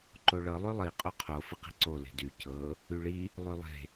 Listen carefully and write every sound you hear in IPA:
ǃ o ɭ ɤ lˠ y lˠ i qʼ o qʰ o f ɪ q i̤ ǀ o l e̤ d y c ɤ | y ɭ i | lˠ y lˠ e̤

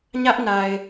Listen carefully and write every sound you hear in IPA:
ɲ ä˦ ʔ n a˨ ɪ̯

